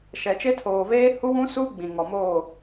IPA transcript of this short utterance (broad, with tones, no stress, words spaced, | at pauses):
ʃɛ˨t͡ʃe˦ tʰoː˨veː˦hu˦ wũ˦suː˦ ɡ͡bĩ˨ŋɔ˨moː˦˨